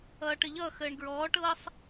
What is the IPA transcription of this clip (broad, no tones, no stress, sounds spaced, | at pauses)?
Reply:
ʌː ʈ ə ʎ ʌː x əː ɳ ɡ ɹ ɔː ʈ ɤː sˤ